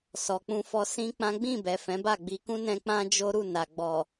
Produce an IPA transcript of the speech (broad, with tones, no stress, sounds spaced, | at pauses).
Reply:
s ɔ˨ k͡p ũ˧ f ɔ˧ s ĩ˦ k͡p ã˦ ɡ͡b ĩ˦˨ b ɛ˨ f ɛ̃˨˦ b a˦˨ ɡ͡b i˧ k ũ˦ n ɛ̃˧ k͡p ã˦ d͡ʒ o˦ ɾ u˦˨ n a˨ ɡ͡b ɔ˨